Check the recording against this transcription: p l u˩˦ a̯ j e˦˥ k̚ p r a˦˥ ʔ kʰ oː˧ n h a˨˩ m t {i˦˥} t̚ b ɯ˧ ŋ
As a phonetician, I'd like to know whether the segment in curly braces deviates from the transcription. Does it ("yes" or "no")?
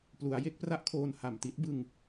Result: no